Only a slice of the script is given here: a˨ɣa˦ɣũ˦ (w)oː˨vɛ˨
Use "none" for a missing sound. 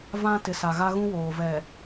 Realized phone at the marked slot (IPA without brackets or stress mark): w